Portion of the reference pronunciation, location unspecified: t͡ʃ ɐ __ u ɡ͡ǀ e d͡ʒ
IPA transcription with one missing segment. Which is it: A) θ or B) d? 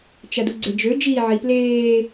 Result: B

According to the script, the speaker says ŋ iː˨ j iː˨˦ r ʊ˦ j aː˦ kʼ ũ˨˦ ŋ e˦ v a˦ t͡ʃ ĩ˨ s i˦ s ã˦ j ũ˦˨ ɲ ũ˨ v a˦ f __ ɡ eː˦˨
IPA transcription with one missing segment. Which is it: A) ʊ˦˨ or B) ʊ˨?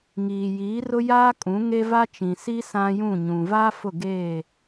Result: A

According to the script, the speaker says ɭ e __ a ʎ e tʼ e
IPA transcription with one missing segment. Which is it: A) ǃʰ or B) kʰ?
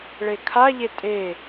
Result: B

